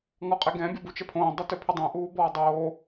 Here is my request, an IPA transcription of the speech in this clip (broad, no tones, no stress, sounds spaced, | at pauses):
ŋ ɔ qʼ ɛ ɡ ɛ̃ bʲ ɔ b u t͡ʃ ɛ pʰ õː dˤ ɛ t ø pʰ ø dˤ ɛ̃ ʔ uː b ɔː dˤ oː